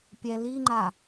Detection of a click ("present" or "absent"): present